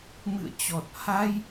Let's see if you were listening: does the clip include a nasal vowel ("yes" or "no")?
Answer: no